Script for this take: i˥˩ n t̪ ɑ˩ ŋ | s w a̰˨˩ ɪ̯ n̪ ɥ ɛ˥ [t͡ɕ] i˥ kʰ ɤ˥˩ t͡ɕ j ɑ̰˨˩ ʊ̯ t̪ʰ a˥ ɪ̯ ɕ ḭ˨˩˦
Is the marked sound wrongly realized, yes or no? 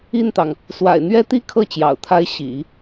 yes